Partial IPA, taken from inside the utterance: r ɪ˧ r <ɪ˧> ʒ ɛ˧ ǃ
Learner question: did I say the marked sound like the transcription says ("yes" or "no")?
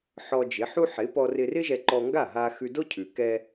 no